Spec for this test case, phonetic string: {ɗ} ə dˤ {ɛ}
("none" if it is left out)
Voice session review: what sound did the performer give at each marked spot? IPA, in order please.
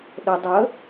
ɗ, ə

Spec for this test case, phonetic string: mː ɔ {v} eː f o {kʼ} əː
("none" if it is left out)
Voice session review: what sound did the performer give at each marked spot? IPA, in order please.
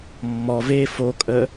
v, kʼ

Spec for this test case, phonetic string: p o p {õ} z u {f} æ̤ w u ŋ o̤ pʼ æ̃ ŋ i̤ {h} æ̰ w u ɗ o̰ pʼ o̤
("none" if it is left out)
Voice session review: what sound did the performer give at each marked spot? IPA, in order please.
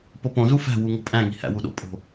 õ, f, h

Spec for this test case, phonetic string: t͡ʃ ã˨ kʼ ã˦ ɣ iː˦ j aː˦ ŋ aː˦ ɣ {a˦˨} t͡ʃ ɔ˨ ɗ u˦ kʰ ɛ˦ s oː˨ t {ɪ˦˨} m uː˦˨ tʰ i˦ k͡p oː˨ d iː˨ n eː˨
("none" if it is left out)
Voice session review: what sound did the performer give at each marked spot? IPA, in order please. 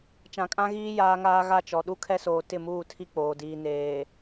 a˦˨, ɪ˦˨

